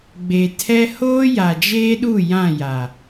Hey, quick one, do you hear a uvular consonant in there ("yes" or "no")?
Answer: no